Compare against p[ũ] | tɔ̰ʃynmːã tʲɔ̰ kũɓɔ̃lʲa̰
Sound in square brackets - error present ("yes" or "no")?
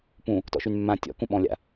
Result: no